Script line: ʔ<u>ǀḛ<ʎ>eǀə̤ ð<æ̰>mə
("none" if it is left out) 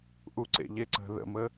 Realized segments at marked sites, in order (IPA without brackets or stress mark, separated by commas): u, ʎ, ə̰